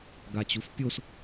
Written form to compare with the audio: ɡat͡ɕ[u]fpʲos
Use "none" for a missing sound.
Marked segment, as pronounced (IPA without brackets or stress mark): u